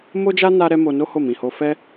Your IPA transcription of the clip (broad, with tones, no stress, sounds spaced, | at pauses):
m o˦ d͡ʒ a˦ n a˦ ɾ ɛ˦ m o˧ n o˦ h o˦˨ m ĩ˨ h o˧ f ɛ˦